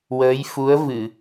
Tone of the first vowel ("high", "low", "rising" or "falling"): rising